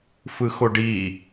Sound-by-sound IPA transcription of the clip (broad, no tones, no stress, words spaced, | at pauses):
fɯxoɖi